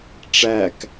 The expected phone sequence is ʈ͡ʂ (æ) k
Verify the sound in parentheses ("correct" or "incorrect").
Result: correct